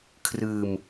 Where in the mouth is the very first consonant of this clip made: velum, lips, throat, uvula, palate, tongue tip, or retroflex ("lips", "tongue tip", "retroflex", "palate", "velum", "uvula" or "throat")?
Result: velum